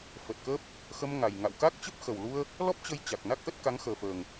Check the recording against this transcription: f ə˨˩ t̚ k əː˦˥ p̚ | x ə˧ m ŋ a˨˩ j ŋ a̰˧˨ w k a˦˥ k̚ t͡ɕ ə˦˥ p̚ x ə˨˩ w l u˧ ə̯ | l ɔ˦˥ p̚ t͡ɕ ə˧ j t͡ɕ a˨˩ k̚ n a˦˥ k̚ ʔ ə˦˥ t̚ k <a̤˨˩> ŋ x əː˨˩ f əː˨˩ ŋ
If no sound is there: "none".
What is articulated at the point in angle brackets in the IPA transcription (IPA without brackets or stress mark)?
a˨˦